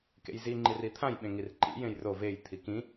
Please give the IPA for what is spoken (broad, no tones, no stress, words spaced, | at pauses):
kḛjziŋ͡ǃir it̪ʰãj ɓẽŋirǃḭ jẽjro vej t̪ʰikĩ